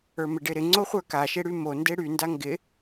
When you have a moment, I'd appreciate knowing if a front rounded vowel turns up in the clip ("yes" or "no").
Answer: yes